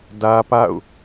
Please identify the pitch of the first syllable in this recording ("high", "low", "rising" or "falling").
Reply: high